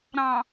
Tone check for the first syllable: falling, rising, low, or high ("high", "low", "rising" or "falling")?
low